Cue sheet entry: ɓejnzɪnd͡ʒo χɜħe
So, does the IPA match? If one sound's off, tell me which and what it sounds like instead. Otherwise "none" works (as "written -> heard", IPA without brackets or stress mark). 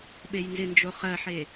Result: none